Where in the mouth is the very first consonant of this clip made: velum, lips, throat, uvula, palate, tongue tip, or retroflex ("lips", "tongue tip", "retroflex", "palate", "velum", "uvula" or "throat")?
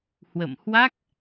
throat